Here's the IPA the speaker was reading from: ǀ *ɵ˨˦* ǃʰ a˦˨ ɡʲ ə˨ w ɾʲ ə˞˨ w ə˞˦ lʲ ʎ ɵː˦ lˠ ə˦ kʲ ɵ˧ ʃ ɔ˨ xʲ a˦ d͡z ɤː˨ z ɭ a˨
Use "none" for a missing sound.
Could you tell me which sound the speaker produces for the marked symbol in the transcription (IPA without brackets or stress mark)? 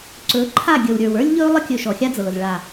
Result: ɵ˨˦